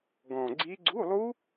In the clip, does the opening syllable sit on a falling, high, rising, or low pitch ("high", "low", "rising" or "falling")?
low